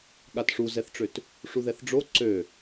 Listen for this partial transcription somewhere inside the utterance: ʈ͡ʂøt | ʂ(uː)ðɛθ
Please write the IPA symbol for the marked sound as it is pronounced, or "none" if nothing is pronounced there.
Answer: u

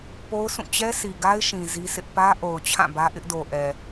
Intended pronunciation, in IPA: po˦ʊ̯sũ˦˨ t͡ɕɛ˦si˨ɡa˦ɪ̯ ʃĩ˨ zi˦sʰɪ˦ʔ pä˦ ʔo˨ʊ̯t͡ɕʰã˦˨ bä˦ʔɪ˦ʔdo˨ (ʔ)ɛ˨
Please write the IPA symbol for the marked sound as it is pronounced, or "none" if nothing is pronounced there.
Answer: ʔ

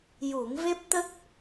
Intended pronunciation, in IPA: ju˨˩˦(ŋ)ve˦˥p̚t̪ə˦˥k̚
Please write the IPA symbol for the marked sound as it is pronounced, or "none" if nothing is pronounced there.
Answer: ŋ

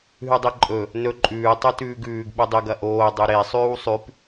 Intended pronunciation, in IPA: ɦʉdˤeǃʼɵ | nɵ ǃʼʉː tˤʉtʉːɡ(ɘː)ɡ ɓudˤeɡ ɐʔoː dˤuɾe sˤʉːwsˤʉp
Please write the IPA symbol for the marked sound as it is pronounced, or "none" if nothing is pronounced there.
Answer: ʉː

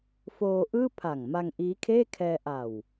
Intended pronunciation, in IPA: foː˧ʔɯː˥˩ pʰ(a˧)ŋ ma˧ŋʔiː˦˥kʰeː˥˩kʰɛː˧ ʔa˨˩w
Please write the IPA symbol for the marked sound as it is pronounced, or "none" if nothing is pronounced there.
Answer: a˨˩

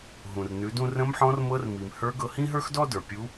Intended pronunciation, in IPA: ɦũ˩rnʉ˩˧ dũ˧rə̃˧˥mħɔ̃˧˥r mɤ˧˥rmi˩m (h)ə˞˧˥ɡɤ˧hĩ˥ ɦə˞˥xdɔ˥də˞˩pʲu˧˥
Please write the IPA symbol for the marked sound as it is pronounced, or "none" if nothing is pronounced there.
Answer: h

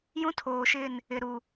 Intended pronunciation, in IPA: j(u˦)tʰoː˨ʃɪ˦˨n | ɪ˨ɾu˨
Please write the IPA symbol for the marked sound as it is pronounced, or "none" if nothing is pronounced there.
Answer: ũ˦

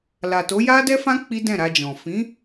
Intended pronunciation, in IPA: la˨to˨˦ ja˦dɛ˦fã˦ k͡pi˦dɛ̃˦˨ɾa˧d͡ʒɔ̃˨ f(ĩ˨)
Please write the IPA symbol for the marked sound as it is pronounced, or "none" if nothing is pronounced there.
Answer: ĩ˨˦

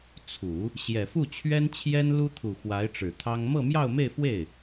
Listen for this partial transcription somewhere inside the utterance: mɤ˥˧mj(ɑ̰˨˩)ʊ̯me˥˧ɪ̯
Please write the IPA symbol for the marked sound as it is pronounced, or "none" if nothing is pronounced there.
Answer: ɑ˥˧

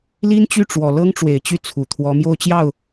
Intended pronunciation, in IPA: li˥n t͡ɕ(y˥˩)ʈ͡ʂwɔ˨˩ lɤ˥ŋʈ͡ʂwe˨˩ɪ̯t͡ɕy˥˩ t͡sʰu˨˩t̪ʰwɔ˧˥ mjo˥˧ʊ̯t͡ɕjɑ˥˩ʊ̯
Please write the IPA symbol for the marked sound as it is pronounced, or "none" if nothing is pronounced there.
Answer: y˥˩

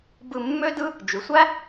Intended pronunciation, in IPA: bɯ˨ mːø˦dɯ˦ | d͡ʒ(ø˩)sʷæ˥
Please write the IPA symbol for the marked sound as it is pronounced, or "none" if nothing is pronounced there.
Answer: y˩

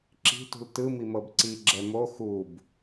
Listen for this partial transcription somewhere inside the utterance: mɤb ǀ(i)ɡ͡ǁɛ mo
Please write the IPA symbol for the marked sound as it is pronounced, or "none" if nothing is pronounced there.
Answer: i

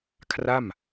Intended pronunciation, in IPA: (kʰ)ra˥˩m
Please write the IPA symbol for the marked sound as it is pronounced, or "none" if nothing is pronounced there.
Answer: kʰ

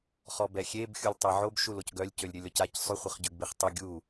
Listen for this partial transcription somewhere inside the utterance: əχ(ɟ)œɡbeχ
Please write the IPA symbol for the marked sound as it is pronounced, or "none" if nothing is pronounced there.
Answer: ɟ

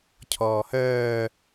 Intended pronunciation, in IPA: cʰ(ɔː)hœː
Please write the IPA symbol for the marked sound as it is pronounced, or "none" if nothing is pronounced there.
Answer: ɔː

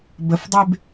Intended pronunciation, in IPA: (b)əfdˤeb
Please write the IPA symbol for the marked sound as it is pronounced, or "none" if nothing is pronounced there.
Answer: b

